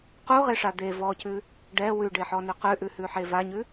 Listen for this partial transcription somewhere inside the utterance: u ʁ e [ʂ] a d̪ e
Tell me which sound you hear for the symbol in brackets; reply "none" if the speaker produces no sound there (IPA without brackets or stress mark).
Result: ʂ